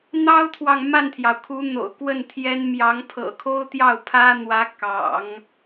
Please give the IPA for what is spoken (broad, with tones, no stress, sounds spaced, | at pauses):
n̪ ɑ˥ ʊ̯ t̪ʰ w ɑ˨ ŋ m a˥˩ n t̪ʰ j ɑ˩ ʊ̯ kʰ u˧˥ n̪ o̰˨˩ ʊ̯ k w ə˥˩ n t̪ʰ j ɛ˥ n m j ɑ˧˥ ŋ pʰ ɤ̰˨˩ kʰ o˥ ʊ̯ t̪ j ɑ˥˩ ʊ̯ pʰ ä˥ n̪ w ä˧˥ k ɑ̰˨˩˦ ŋ